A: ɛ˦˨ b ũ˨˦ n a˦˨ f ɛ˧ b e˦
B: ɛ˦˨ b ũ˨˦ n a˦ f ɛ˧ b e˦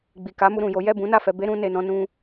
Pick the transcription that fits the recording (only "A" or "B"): A